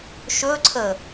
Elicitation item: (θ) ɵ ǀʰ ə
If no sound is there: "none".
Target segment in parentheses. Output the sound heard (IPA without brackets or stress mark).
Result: ʃ